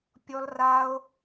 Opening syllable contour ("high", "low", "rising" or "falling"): high